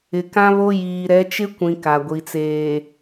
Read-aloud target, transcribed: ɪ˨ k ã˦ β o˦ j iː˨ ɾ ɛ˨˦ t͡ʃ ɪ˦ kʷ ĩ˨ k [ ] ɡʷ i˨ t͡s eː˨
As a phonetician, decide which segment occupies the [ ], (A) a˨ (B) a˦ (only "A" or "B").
A